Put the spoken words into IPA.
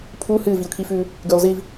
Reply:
pʰ u h ɨː v i ʊ̯ kʰ i f ʉː | ɡ ʉː lˠ z i v

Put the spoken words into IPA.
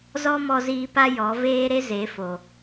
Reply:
z ɔ˦ m ɔ˧ z iː˧ p a˦ j ɔ˨˦ v eː˦ ɾ e˦ z e˨˦ f o˨

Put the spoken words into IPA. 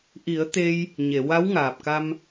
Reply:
ʔ i˨˩˦ ə̯ t̪ e˧ j | ɲ e˨˩˨ w a˧˥ w ŋ aː˨˩ p̚ k a˧ m

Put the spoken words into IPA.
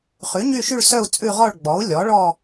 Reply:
χ ʉ˩˥ ɲ y˥˧ ʃ y˥˧ ɭ s œ˥˧ u̯ t͡sʼ ʉ˥˧ ʁ ɔ˥˧ ɭ ɡ͡b ɔ˩˥ u̯ lʲ ɔ˩˥ ɭ ɔ˥˧

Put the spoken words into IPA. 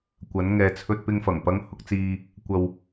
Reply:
kʷ ɐ˨˧ n ŋ ɛː˨ t͡sʰ ɵ˧ t̚ p ɪ˧ ŋ f ɐ˨˩ ŋ p ɐ˧ ŋ h ʊ˧ k̚ t͡s iː˧ | kʷ ɐ˧ w

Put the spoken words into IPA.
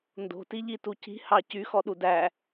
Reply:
n d o̤ t i ʎ i t u c i̤ h ɑ c y x ɔ ɗ u d æ

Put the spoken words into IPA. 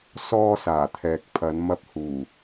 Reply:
s ɔː˧ s aː˨˩ t̪ʰ ɛː˨ k̚ pʰ ɐ˨˧ n m ɐ˧ p̚ h uː˨˩

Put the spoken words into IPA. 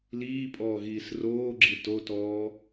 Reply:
l iː pʼ ɔː ɣ iː s r oː ɡ͡ǁ i t o t ɔː

